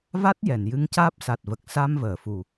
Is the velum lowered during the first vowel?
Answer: no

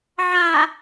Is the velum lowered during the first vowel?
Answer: no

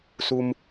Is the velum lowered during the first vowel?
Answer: no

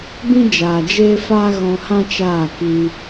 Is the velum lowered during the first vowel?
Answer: yes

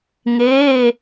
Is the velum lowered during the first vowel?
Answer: no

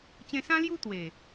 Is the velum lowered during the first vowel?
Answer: yes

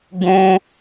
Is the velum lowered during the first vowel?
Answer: yes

